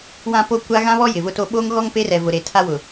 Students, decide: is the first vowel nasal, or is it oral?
nasal